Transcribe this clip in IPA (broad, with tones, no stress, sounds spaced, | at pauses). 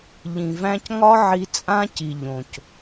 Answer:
ʎ ĩ˨ v æ̃˧ c ŋ ɒ˦ ʕ i˧ t͡sʼ ã˦ c i˨ ʎ õ˨ c